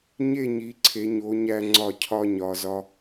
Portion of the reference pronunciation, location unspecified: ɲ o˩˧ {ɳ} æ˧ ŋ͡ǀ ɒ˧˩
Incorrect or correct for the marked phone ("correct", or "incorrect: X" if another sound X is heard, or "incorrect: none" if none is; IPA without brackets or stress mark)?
incorrect: ɲ